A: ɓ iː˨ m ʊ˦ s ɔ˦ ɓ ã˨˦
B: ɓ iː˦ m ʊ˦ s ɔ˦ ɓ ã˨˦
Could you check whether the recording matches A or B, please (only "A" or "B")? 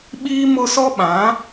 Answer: B